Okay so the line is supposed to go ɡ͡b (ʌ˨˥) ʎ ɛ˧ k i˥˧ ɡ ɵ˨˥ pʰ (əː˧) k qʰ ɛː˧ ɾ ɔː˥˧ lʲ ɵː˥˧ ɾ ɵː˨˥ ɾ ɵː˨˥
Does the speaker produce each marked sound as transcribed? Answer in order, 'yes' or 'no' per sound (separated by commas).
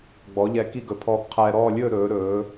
no, no